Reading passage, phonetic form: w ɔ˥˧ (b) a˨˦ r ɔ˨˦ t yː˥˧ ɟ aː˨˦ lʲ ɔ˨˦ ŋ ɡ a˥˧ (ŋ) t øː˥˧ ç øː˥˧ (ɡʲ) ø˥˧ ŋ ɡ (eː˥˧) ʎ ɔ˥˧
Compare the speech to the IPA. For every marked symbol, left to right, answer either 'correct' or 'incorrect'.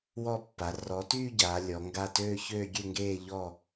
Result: incorrect: pː, incorrect: none, correct, correct

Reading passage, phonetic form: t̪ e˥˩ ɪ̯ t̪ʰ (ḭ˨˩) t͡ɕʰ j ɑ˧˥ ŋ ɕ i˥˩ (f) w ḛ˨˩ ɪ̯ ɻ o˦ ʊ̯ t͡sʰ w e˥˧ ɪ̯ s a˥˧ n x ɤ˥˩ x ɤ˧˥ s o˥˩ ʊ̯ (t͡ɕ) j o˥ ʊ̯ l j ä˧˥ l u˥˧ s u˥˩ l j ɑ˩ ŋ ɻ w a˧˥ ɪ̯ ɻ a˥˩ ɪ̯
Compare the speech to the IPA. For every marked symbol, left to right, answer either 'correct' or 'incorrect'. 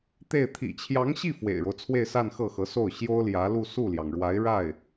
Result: correct, correct, incorrect: ɕ

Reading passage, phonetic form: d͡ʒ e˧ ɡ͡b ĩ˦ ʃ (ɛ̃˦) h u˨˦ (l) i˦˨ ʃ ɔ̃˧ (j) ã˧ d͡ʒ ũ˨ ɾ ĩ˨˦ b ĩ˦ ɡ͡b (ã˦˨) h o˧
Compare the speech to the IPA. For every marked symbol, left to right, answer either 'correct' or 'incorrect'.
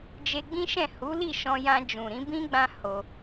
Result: incorrect: ɛ̃˦˨, correct, correct, incorrect: ã˦

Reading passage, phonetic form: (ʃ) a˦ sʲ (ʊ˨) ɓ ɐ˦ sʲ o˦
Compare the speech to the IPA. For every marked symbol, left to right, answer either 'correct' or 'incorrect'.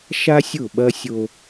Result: correct, incorrect: ʊ˦˨

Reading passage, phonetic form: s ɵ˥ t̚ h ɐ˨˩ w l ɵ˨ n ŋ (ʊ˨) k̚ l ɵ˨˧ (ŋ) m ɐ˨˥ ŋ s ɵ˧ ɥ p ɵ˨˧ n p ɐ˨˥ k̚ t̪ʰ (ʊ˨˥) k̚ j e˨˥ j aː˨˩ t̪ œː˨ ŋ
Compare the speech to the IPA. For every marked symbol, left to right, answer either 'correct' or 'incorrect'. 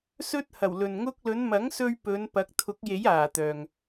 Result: incorrect: ʊ˥, incorrect: n, correct

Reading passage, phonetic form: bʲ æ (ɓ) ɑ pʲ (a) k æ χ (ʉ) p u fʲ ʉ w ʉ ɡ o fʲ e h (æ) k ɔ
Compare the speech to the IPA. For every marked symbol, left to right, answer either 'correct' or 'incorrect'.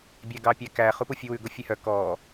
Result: incorrect: ɡ, incorrect: æ, incorrect: u, incorrect: œ

